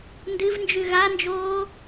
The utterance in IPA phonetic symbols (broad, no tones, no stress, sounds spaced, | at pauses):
n d ɨ v n d͡ʒ ʉ ɣ a n d͡ʒ oː